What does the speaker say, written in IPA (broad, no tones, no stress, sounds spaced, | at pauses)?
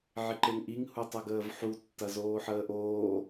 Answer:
ʕ ɪ ǃ e ŋ ʔ i ŋ h u tˤ ɐ ɡ əː v ħ u tː ɐ z oː ħ əː ʔ oː